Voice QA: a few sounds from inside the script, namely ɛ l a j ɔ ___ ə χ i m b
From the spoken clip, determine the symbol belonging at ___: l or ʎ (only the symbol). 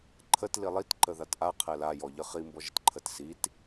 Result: ʎ